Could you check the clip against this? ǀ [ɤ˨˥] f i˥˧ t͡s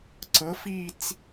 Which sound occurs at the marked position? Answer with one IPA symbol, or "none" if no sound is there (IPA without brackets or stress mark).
ɤ˨˥